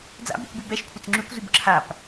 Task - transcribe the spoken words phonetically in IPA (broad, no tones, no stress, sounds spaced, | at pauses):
d͡z a̰ b y kʷ b y b ɛ ʃ kʷʰ ə t͡s ŋ͡ǁ y kʷ z y b ǁʰ a p